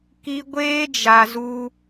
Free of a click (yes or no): yes